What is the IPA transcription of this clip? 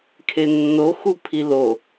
kʰenːo xupʰilo

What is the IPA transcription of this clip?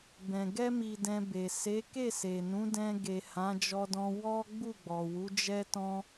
bɛ̃˨ ɡɛ˧mi˨ dɛ̃˧be˨ se˨˦ ke˦˨se˨nũ˨˦ dɛ̃˧ɡe˨ hã˨˦d͡ʒɔ˧dɔ̃˧ wɔ˦ ɡ͡bu˦˨ɡ͡bɔ˨wu˨˦ d͡ʒɛ˦tɔ̃˦

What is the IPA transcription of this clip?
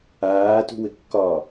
aːtṳwɘkːɒː

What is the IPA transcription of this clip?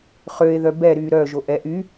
χøe̯ðœ bɛ ɾyːɾœːʒo ʔɛ ʔy

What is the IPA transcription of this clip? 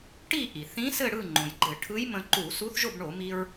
ʈi˥˨ ʔi˩θĩ˧˥ sɘ˥˨ɽɯ˥˨ŋ͡ǃõ˩j ɡ͡ǃɘ˧˩˧ʈʰɯ˧˥jmə̃˧ǃu˧˩˧ su˧˥θʒo˥˨bɳo˧˩˧ mi˧ɹ

